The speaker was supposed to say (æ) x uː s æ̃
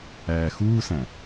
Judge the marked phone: incorrect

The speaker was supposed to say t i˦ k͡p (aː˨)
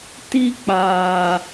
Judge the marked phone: correct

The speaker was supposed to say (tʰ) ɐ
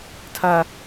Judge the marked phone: correct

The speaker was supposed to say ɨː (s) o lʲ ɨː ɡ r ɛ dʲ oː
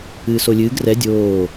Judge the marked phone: correct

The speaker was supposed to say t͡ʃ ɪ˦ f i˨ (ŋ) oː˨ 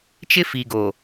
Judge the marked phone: incorrect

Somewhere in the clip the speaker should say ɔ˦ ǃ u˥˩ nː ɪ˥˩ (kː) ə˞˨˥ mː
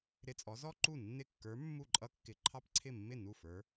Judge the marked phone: correct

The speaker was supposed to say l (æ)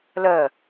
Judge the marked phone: incorrect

